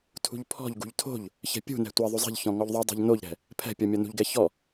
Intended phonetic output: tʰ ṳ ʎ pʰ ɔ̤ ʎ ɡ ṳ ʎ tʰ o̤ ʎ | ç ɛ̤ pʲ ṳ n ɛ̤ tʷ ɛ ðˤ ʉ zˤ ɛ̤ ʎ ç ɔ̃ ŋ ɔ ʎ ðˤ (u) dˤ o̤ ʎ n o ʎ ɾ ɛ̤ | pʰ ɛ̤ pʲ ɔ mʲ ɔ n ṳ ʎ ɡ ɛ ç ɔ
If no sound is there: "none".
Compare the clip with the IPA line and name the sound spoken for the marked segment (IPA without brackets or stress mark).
ʉ